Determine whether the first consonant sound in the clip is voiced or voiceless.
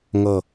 voiced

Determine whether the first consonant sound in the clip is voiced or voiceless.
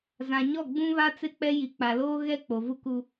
voiced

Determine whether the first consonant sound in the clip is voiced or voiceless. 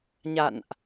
voiced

